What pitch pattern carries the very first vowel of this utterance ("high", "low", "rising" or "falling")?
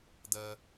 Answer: high